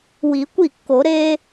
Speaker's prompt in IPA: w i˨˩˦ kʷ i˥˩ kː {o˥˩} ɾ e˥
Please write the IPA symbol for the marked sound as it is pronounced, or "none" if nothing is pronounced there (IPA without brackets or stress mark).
o˨˩˦